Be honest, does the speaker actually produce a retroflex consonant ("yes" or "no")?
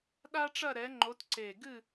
yes